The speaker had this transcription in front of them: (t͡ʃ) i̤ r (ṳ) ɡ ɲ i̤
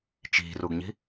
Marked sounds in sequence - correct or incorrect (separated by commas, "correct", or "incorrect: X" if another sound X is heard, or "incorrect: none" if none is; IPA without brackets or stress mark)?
correct, incorrect: u